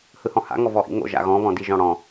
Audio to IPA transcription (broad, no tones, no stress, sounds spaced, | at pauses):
h ɯ h ɔ̃ h a̰ ŋ ɔ v ɔ ʔ ḭ ŋ o̰ ʒ a̰ ɣ ɔ̃ β ɔ̃ d i ʒ ɔ̃ ɽ ɔ̃